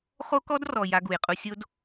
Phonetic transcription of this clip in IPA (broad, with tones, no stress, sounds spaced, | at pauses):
χ o˦ k ɔ˦ d r ɔ˨ j a˦ ɡ u˨ j qʼ u˦ sʲ o˦ d